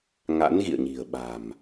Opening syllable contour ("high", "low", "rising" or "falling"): rising